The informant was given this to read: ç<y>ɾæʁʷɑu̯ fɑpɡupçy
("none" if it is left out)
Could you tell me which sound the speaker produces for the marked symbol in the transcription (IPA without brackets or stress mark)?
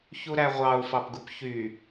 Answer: u